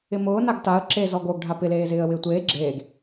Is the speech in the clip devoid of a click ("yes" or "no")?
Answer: no